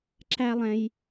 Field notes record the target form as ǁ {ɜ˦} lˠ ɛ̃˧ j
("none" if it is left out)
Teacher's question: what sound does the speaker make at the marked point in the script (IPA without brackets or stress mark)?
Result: æ˦